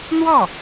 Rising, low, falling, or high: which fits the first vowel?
falling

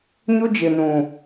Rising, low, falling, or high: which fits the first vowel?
high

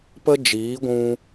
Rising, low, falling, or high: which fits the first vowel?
high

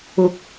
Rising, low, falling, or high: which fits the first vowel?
low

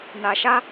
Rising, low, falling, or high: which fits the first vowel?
low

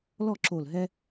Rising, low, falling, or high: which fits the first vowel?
falling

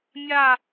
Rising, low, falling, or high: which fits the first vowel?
falling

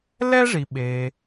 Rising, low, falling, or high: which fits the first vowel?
high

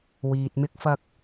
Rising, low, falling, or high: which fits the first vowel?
low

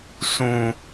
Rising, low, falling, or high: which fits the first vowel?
low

